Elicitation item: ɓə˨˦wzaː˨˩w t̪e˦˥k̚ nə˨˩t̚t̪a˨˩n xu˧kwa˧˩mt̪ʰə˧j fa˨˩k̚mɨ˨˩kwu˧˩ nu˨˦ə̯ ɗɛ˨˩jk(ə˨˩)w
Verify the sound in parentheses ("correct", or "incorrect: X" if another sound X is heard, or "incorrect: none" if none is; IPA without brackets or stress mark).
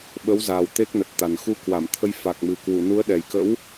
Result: incorrect: ə̰˧˥